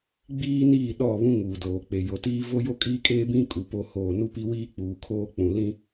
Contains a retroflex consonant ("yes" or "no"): no